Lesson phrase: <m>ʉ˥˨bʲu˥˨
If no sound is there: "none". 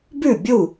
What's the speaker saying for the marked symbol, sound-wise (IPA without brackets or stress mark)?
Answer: b